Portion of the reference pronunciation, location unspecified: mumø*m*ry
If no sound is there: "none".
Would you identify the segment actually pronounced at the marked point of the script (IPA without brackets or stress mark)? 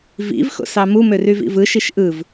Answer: none